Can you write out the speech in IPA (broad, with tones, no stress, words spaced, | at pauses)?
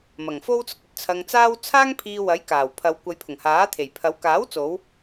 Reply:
mɐ˨˩ŋfo˥wt͡sʊ˧k̚ ɵ˨t̚t͡sʰɐ˧ŋt͡saː˥w t͡sʰaː˥ŋpʰiː˧ wɐ˨˥j kaː˨˩wpʰɐ˨˧wkʷɐ˨˧j pʰʊ˨˩ŋhaː˨˥t̪ʰe˨˩jpʰɐ˨˥w kaː˨˥wt͡so˨˧w